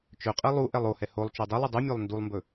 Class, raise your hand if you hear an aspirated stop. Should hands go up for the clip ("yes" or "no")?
no